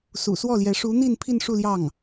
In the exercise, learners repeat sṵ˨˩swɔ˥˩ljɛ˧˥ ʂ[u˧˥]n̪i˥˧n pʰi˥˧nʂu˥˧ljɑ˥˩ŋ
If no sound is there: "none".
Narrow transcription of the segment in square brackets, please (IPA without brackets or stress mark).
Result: u˧˥